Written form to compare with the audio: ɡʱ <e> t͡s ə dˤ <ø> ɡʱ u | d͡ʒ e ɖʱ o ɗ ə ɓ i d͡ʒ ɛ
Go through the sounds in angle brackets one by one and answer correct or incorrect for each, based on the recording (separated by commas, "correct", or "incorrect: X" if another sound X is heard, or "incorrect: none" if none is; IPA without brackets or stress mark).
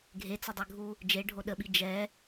correct, correct